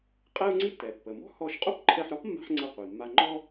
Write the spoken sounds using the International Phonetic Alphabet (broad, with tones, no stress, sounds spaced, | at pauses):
qʼ ɛ˥ u̯ ŋ͡ǀ i˥ tː ɛ˩ pː ə˩ m ɔ̤˥ h ɔ˧ ʃ qʼ o˥ p ǃʰ ɛ˧ ħ ɾ ɔ˥ p mː a̤˥ ħ ŋ͡ǀ ə˧ qʷ i˩ mː a˧ ŋ͡ǃ ɔ˥